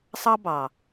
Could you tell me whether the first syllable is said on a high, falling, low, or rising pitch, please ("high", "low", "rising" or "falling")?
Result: high